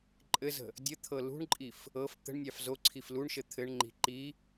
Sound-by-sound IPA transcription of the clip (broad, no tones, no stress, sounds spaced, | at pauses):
ǃʼ ɘ z ə̤ | dʲ ə t̪ʰ ɤ l ṳ ɳ ǃʼ i f | ɤ f t̪ ə̤ ɳ nʲ ɑ f z o ǀʰ i f l u ɳ ʃ ɘ t̪ʰ ɘ ɳ ŋ͡ǃ i̤ ǃ i